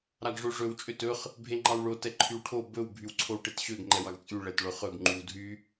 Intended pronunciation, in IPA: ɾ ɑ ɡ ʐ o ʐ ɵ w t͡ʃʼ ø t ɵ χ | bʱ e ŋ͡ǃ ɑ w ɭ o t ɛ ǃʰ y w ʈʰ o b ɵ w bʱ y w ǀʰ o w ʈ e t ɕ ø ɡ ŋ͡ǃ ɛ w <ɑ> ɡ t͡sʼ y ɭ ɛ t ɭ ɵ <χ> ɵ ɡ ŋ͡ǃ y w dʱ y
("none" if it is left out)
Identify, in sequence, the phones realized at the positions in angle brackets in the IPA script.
ɑ, χ

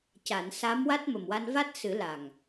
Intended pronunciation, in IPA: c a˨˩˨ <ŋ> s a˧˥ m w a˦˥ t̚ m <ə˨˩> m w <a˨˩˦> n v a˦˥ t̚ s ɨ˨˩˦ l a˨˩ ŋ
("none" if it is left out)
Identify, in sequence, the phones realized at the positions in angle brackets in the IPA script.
n, ə˨˩, a˧

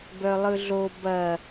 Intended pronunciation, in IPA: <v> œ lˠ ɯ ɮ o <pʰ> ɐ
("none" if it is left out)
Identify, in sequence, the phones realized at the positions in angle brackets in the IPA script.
b, b

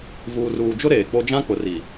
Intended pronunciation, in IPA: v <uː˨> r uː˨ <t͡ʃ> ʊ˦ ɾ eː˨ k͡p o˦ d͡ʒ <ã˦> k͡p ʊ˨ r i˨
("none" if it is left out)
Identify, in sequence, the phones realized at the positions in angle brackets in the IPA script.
uː˨, d͡ʒ, ã˦

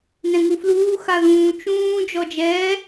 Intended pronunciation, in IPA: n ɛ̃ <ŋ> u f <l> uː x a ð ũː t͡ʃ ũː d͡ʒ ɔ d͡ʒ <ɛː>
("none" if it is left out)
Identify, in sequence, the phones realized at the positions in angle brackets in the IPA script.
ŋ, l, ɛː

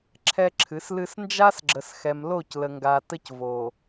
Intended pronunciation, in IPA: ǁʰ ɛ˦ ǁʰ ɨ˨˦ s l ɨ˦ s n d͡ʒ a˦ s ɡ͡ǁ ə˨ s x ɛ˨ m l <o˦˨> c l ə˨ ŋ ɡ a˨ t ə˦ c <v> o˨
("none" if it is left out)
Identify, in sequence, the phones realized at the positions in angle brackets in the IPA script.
o˦˨, v

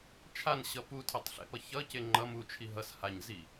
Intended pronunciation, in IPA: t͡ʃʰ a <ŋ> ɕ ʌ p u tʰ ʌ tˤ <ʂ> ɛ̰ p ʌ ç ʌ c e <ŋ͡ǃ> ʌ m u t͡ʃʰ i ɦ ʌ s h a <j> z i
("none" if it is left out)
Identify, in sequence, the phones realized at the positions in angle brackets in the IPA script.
n, ɬ, ŋ͡ǃ, ɲ

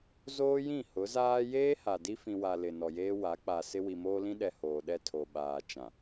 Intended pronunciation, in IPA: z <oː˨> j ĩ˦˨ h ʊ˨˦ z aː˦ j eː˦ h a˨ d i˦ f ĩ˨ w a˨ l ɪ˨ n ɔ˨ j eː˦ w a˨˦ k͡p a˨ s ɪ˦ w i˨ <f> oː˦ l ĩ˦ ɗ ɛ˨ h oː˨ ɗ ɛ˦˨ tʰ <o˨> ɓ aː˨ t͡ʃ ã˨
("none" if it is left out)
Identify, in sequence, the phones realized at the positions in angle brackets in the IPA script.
oː˦, m, o˨

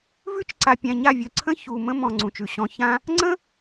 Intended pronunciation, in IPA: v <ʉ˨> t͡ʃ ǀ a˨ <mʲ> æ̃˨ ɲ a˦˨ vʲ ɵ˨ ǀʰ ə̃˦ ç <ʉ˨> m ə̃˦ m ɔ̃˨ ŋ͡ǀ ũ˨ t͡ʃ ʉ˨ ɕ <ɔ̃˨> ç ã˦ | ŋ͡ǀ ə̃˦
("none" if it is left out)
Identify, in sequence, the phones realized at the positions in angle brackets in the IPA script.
ʉ˦, pʲ, u˨, ɔ̃˨

